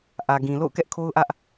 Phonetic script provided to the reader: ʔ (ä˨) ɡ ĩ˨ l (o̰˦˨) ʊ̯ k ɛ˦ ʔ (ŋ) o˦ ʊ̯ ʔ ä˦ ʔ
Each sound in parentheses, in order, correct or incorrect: correct, correct, incorrect: kʰ

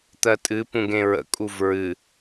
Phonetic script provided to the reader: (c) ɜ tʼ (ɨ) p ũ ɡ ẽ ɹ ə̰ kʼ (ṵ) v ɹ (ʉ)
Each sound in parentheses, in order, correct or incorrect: incorrect: t̪, correct, incorrect: u, incorrect: ɨ

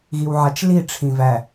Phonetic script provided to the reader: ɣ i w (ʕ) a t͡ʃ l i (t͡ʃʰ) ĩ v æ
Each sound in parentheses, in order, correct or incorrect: correct, incorrect: ʈ͡ʂʰ

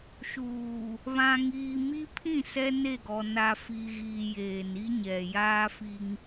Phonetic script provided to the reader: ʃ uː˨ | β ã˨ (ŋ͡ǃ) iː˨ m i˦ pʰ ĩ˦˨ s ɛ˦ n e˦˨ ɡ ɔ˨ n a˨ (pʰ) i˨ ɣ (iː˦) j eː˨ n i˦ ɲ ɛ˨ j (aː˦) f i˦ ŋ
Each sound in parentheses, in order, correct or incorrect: incorrect: ŋ, incorrect: f, incorrect: iː˨, correct

